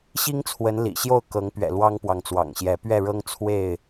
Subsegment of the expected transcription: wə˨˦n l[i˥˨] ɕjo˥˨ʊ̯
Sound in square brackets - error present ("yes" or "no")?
yes